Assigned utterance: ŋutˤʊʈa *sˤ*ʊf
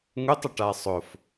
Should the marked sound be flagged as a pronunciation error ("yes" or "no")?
no